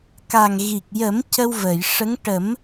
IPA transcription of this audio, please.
k a˨˩ ŋ ɣ i˨˩ k̚ j ə˨˩˦ m c ə˧ w v əː˨˩˨ j ʂ ə˧˥ ŋ ʈ ə˨˩˦ m

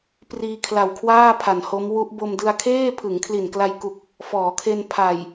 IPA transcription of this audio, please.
p r iː˧ kʰ l a˨˩ w kʰ w aː˥˩ pʰ a˨˩ n h o˦˥ m w u˦˥ ʔ b o˧ m d ɯ˧ a̯ kʰ eː˥˩ pʰ ɯ˩˦ ŋ kʰ l i˨˩ n k l a˧ j k u˨˩ k̚ | f ɔː˩˦ kʰ e˧ n pʰ a˨˩ j

